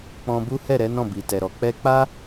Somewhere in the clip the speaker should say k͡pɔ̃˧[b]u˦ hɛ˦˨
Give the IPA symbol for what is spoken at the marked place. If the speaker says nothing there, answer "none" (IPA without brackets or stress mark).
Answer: b